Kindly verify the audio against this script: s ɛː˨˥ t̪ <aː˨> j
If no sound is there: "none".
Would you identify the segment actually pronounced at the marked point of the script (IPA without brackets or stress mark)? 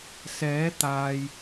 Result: aː˨